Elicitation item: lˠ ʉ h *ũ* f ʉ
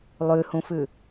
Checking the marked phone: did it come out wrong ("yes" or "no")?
no